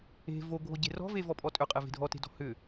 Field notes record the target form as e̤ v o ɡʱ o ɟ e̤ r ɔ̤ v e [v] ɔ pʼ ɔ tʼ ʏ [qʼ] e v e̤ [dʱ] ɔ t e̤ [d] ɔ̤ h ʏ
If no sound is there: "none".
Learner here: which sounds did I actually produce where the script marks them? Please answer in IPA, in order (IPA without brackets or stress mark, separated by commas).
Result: v, qʼ, dʱ, d